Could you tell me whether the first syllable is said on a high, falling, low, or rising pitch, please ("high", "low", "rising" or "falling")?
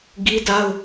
high